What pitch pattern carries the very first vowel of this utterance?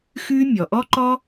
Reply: high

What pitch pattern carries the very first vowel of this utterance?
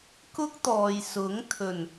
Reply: high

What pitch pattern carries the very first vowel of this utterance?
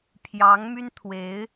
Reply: rising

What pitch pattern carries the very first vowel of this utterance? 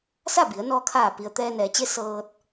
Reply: falling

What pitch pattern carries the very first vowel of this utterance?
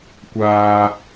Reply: low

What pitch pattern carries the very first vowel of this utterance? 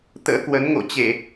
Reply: rising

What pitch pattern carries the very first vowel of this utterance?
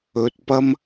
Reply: low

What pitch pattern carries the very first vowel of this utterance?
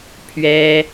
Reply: high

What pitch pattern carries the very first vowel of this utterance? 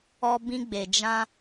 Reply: high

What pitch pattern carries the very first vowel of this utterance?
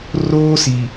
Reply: high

